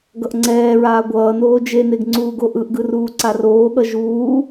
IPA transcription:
ɡ ʌ ʔ ŋ͡ǀ ɛː ɹ aː ɡʷ ʌː n oː d͡ʒ e n e ɡ ŋ͡ǀ uː ɡ o ʔ ɯ ʔ ɡ ɯ r uː ǀ a r oː ɠ ʌ ʒ uː

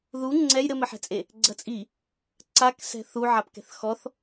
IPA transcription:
ð u ŋ͡ǀ ɛ j ɾ ɘ m ɘ ħ ɛ̤ t͡sʼ e | ɡ͡ǀ ɐ t͡sʼ i | ǀ a k s ɛ̤ θ u ʕ a p k ɛ̤ θ x ɔ θ

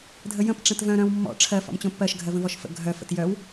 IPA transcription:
dʱ ə j ə̃ p ʈ͡ʂ ə̃ t v œ̃ ɾ œ̃ w mː ɔ̰ ʈ͡ʂʰ ɜ f ɔ̰ m t͡ɕ õ pː ɜ ʃ ɡʱ ɜ v ə̃ v ɔ ʃ f ə̰ ɡʱ œ f ə̰ t j œ w

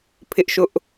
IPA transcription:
pʰ ɪ˦ ʔ ʃ ʊ˦ ʔ

